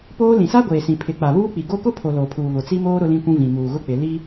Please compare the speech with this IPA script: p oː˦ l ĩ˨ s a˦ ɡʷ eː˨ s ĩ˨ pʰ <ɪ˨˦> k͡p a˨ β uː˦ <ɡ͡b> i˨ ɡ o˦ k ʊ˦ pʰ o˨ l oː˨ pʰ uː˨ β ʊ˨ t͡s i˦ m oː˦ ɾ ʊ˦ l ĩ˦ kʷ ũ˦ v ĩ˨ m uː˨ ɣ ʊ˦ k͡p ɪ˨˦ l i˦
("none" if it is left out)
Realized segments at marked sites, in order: ɪ˨˦, k͡p

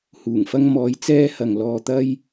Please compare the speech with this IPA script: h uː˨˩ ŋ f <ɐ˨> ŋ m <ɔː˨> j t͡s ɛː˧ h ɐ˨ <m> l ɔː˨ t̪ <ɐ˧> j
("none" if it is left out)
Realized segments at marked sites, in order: ɐ˧, ɔː˨˧, ŋ, ɐ˧

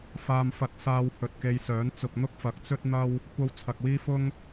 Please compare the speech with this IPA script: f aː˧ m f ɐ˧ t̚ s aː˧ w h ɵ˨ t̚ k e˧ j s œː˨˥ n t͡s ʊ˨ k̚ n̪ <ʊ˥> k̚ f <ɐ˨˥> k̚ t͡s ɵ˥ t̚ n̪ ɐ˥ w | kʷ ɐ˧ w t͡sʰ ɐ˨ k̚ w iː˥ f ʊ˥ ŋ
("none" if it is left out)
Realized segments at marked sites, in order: ʊ˥, ɐ˨˥

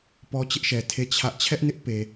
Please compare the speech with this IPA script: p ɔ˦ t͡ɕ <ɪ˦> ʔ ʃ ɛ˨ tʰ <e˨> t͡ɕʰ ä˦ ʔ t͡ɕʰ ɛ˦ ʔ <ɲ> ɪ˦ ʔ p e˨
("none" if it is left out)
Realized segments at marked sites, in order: ɪ˦, e˦˨, n

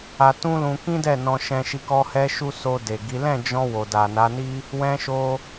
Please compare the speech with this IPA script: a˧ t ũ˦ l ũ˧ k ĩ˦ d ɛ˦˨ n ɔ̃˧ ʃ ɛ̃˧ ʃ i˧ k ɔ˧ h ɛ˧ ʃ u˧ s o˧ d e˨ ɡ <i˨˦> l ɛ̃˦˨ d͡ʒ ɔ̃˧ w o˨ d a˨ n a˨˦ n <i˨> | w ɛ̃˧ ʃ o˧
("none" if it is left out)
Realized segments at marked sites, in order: i˨˦, i˦

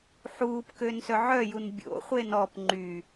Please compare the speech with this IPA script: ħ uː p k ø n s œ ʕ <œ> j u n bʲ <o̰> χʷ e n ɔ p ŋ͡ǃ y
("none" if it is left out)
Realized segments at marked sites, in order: œ, o̰

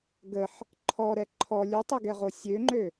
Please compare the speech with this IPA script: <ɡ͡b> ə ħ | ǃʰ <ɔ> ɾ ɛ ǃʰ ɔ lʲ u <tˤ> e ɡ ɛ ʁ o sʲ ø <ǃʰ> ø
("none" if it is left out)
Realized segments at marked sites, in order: ɡ, ɔ, tˤ, ŋ͡ǃ

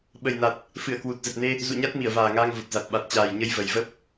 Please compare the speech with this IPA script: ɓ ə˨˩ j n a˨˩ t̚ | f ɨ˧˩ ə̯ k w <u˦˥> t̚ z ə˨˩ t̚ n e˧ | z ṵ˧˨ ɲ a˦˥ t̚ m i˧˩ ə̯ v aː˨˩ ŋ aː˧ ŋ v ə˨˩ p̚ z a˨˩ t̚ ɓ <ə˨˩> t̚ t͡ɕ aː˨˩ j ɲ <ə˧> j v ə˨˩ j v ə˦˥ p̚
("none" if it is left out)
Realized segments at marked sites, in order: u˨˩, a˨˩, ə˧

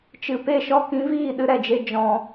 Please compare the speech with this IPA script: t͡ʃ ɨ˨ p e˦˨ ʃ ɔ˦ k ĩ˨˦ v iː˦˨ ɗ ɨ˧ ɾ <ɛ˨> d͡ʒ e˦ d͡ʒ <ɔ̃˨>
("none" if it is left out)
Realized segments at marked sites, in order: ɛ˨, ɔ̃˧

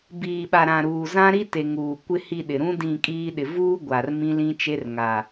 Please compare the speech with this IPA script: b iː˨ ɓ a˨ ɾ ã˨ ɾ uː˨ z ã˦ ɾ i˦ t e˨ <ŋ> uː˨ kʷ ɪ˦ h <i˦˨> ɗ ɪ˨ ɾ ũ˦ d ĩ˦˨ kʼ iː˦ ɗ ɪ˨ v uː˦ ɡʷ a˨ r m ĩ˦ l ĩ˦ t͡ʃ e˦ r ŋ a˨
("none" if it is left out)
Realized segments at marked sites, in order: ŋ, i˦˨

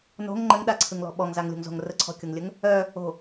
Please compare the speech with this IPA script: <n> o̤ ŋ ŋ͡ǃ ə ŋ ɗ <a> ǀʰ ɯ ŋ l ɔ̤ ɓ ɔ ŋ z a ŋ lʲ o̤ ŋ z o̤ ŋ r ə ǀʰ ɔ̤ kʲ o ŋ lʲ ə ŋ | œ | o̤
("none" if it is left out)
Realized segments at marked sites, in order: n, a

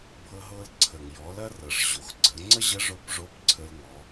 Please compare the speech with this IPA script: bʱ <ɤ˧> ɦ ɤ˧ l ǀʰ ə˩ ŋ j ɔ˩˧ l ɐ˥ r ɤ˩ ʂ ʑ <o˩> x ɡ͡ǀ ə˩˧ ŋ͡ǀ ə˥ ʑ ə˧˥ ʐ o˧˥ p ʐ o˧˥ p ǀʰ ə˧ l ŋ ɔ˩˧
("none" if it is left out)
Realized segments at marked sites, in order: ɤ˧, o˩

